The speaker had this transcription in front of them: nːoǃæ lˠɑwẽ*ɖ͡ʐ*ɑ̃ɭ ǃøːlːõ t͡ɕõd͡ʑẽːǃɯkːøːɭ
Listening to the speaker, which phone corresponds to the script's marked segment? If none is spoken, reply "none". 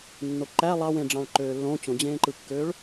ɖ͡ʐ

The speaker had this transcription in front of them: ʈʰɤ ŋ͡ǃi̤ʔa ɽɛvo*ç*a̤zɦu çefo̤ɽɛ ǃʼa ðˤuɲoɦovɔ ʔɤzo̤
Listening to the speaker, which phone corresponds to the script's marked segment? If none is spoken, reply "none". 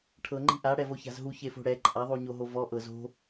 ç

